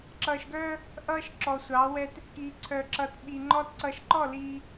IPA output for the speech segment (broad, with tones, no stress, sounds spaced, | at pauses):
ǁ ʌː˨ ʃ ɡ œː˦ | ʔ ʌː˦ ʃ ǁ ɔ˨ sʷ ɑ˨˦ w ɛ˦ t | k i˨ ǀʰ œ˨ ǁ ʌ˨ t ɓ i˨ ŋ͡ǃ ɔ˦ t ǀ ʌː˨ ʃ ǃ ɔ˦˨ l iː˦